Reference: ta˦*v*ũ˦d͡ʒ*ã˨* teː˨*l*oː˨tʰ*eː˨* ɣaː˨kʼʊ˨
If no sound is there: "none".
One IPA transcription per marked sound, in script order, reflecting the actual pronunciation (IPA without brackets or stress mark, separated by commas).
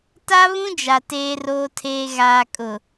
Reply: β, a˨, r, eː˨